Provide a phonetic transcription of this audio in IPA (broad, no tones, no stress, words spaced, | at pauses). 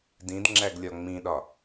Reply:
dĩdŋ͡ǁæɡlʲɒ ŋ͡mĩɗɒ